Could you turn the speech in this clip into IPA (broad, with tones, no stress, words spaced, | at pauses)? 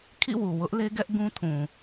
kʰḭ˦˨wu˨wʊ˦ʔ le˦ɡɛ˦ʔɡũ˦tʰũ˨